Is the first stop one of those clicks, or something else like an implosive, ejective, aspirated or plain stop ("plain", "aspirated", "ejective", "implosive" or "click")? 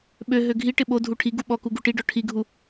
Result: implosive